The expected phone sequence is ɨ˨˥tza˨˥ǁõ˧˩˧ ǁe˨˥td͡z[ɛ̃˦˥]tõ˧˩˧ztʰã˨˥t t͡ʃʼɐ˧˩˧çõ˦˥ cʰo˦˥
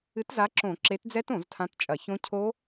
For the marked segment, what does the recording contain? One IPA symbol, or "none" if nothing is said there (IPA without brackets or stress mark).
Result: ɛ˦˥